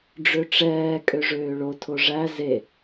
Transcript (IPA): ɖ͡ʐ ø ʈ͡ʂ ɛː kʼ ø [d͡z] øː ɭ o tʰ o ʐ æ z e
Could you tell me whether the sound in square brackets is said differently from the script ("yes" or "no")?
yes